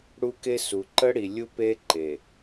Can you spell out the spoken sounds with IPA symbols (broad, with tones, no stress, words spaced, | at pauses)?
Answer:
ɽu˦ke˦su˨ ǃə˦ ɽi˨lʲu˦pe˦ ǃe˨